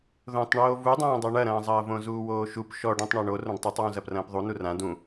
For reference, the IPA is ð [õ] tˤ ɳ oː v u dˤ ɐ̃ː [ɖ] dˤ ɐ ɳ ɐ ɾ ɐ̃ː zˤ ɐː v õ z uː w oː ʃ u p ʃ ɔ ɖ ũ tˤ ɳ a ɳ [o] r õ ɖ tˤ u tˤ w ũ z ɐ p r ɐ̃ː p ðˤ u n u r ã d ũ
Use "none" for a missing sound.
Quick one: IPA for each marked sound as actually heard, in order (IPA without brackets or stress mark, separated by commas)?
õ, none, o